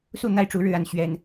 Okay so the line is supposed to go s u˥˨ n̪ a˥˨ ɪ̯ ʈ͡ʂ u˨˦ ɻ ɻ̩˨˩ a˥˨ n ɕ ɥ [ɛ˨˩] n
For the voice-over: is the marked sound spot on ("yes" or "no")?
yes